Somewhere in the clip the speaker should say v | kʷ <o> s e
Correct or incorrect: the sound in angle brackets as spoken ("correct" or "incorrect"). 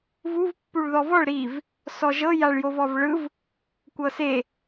incorrect